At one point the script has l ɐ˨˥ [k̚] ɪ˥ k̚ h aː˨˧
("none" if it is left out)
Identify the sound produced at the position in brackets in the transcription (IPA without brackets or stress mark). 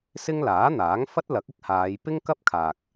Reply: k̚